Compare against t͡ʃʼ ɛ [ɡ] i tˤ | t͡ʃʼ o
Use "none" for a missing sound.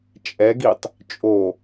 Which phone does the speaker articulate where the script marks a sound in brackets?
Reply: ɡ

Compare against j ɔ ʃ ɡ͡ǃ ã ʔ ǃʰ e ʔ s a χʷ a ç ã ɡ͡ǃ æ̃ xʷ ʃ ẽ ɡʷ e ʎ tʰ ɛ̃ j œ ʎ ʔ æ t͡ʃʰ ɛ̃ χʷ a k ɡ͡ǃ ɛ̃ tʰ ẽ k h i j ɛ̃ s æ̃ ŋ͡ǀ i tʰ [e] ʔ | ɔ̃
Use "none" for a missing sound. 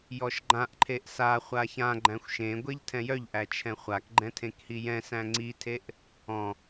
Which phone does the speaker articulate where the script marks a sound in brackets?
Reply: e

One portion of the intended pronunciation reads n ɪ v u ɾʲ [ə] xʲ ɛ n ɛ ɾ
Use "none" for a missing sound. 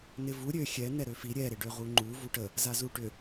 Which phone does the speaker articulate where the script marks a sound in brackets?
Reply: ø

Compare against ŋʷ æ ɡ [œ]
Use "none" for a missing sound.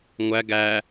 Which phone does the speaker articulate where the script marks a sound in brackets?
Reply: æ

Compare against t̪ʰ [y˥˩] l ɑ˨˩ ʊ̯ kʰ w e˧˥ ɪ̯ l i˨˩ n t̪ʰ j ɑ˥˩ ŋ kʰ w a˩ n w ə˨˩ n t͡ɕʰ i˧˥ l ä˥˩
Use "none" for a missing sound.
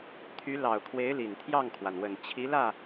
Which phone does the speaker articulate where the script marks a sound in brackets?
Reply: y˧˥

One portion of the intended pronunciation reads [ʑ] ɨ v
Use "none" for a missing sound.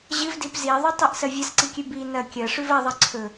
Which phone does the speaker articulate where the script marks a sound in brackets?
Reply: ʑ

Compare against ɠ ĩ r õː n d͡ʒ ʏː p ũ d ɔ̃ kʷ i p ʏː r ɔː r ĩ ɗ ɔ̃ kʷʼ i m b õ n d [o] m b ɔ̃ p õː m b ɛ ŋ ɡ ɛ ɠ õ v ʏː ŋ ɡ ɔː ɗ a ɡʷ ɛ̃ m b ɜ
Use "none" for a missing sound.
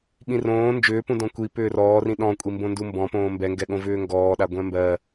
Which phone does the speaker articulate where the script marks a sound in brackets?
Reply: u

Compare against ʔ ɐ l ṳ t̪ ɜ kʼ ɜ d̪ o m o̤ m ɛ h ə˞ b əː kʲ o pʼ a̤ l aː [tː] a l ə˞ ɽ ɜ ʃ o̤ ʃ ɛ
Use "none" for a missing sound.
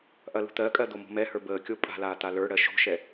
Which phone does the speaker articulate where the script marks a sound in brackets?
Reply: t̪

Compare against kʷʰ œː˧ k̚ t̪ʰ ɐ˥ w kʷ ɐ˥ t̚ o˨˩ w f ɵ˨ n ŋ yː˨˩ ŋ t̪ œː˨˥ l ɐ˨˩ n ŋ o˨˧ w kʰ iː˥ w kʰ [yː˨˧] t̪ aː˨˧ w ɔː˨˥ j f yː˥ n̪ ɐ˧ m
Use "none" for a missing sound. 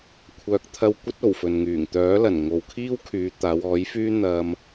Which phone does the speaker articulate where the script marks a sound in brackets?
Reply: yː˨˧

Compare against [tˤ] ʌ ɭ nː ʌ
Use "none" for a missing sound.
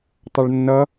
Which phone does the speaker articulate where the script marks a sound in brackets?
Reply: tˤ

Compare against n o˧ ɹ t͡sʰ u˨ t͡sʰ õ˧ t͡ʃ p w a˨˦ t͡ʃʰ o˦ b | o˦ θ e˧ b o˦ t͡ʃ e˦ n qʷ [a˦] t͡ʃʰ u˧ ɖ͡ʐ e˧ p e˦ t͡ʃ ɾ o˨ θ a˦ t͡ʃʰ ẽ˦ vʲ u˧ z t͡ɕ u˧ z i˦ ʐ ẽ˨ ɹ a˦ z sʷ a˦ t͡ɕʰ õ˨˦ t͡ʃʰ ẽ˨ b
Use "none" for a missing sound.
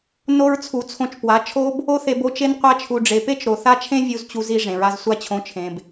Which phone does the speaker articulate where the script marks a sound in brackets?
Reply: a˦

